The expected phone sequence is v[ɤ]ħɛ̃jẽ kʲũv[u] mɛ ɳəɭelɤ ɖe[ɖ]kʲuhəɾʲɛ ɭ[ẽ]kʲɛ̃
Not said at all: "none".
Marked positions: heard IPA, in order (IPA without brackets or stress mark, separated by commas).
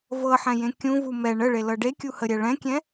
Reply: ɤ, u, none, ɛ̃